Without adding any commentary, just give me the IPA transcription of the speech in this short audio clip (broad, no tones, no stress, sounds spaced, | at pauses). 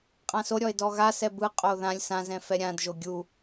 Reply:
qʼ ã s o ɾʲ ɔ e̯ d ɔ ɣ a s ɛ b ɯ qʼ o ð ã lʲ s ã z ɛ̃ f ɛ ɾʲ ã d ʒ o ɡʲ u